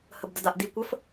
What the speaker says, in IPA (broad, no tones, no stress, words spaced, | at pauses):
həbdədaʔdi kʷəf